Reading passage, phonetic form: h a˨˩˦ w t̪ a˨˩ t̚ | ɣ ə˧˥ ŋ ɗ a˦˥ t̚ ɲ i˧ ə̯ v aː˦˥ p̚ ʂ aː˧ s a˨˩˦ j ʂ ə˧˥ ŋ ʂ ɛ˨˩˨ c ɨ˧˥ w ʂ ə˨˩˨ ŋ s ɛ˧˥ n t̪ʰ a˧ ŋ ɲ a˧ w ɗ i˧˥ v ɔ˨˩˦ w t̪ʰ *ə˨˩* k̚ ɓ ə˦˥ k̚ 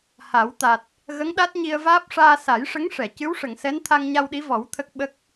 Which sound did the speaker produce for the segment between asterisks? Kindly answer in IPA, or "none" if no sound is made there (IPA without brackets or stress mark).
ə˦˥